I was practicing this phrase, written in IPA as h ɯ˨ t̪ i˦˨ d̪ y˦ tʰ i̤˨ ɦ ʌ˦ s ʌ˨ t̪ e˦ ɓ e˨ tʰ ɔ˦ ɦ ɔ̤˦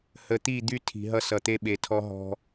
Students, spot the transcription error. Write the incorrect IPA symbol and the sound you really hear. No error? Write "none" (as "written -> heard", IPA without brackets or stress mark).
ɯ˨ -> ə˨